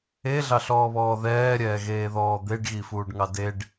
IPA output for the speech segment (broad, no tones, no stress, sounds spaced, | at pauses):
e ɮ ɑ ɬ ɔː β ɔː ð ɛː ɾʲ ɛː ɣ eː ð ɔː d̪ e ɖ ɣ i f uː ɖ ŋ ɑ d e ɖ